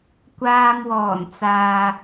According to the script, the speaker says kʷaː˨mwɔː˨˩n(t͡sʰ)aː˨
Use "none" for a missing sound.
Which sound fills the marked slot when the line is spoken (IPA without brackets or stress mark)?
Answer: t͡s